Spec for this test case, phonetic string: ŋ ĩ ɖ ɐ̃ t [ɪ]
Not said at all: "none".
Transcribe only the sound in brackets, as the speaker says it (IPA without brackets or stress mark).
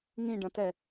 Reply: ɛ